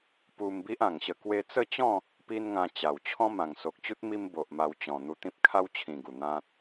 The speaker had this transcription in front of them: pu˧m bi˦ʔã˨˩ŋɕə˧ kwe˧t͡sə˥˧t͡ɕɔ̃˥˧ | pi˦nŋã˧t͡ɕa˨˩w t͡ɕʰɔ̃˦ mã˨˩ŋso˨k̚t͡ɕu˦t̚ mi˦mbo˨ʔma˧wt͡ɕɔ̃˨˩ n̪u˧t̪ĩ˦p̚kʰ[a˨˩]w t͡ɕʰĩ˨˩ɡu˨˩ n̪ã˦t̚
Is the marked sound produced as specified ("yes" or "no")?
no